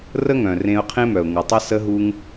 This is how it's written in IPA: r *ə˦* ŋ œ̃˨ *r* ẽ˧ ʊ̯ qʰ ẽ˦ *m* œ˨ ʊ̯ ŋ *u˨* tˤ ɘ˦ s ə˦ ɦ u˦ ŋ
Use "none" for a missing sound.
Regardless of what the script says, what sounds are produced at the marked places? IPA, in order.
ə˦, r, m, u˨

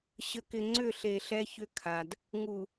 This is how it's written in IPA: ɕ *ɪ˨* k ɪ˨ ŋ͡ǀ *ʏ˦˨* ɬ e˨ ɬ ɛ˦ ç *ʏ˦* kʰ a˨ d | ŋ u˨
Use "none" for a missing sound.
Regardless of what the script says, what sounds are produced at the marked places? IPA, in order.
ə˨, ʏ˦˨, ʏ˦

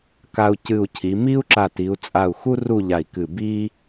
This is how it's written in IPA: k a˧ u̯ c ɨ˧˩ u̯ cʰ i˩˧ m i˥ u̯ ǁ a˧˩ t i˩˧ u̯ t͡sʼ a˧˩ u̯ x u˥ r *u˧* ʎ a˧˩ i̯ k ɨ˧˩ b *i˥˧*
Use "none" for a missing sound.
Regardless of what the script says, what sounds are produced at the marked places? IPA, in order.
u˥˧, i˥

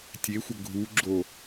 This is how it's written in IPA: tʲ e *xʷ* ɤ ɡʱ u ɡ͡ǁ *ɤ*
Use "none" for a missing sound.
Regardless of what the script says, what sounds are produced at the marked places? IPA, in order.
xʷ, o

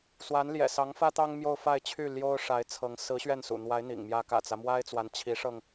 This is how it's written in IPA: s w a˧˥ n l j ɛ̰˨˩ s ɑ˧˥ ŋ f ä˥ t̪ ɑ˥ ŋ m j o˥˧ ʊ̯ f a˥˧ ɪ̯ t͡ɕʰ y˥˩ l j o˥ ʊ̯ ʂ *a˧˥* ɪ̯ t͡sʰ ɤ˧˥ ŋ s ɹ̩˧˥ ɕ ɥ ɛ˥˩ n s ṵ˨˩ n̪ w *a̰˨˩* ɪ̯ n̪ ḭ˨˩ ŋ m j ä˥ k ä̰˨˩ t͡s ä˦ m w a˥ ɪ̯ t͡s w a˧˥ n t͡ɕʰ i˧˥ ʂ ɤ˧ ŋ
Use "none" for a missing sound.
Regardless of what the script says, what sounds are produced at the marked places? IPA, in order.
a˧˥, a˧˥

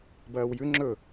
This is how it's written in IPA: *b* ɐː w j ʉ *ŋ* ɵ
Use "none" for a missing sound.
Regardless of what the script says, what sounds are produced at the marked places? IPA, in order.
b, ŋ͡ǁ

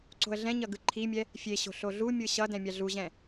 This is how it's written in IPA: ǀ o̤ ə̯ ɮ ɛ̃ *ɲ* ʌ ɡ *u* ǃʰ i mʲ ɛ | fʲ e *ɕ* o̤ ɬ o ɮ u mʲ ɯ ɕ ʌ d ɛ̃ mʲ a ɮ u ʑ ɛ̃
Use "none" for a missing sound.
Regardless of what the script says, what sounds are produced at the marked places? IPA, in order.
ɲ, ɯ, ɕ

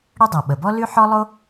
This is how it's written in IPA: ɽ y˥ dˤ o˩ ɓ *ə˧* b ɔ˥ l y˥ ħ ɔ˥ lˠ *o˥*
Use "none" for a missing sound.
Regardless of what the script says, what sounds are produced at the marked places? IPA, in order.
ə˩, o˥

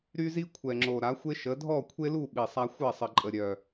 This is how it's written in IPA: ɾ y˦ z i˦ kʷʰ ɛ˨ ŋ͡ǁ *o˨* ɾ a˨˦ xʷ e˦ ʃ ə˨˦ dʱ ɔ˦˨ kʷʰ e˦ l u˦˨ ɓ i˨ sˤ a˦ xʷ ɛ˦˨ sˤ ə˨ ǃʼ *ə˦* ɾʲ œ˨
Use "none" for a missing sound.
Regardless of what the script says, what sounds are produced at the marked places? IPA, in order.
o˨, ə˨

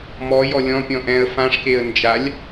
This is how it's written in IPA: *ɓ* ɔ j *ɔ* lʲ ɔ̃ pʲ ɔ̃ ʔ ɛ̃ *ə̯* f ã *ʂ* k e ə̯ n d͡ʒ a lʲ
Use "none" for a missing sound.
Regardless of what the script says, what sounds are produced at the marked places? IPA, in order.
m, ɔ, ə̯, ʂ

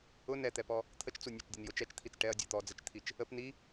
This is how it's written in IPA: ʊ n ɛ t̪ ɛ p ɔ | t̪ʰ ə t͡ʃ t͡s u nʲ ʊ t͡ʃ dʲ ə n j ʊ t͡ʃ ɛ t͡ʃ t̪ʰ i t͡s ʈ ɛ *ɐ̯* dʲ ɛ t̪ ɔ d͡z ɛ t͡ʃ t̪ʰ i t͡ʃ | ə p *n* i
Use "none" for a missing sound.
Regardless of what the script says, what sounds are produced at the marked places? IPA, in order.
ɐ̯, n

